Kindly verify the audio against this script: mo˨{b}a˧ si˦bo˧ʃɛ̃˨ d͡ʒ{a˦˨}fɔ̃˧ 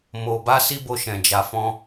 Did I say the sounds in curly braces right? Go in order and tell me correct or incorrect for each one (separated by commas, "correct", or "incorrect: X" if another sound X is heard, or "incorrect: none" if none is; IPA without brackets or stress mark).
correct, incorrect: a˨